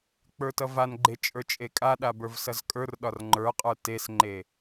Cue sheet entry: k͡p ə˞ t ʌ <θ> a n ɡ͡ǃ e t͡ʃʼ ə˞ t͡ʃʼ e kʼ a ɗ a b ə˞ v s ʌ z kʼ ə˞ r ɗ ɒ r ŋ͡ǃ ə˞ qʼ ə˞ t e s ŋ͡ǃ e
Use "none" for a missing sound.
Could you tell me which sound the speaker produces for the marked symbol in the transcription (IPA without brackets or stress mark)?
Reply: v